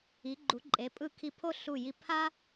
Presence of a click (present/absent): present